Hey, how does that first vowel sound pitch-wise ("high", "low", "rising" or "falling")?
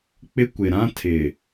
high